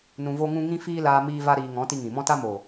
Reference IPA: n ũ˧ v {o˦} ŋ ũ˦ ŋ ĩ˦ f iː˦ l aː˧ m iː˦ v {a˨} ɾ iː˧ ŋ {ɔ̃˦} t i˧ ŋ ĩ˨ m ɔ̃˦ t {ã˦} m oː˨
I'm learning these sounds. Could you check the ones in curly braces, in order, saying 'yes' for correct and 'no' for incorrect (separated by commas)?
yes, no, no, no